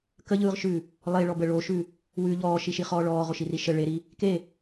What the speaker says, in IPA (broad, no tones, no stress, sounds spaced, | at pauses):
k ə ʎ ɯː ʁ ʃ ʉ | lˠ e ɭ ɔ b ə ɭ o ʃ ʉ | w ʉ ʎ ɔː ʃ i ʃ i χ ɔː ɭ ɔː ʁ o ʃ i r i ʃ ə ɭ e ɾ i | k e